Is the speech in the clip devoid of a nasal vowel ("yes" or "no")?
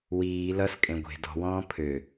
no